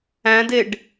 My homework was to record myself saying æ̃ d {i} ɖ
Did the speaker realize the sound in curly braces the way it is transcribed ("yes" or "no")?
no